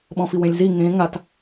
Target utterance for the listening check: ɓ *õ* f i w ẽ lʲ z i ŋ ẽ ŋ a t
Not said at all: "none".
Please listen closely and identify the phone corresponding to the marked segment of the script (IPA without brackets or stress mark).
ɔ̃